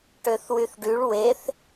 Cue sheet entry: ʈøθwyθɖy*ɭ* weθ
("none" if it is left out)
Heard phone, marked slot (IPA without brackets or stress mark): ɭ